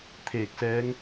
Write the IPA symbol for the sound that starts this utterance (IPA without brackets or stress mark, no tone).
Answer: t̪ʰ